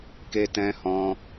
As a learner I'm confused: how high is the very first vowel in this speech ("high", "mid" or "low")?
mid